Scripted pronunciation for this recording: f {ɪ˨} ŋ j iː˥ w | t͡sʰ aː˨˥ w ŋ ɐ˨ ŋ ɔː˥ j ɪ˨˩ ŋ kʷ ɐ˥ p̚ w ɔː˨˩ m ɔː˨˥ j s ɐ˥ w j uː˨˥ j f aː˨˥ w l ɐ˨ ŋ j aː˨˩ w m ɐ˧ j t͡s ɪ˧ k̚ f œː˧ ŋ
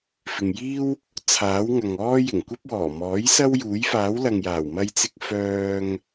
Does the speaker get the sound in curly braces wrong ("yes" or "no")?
no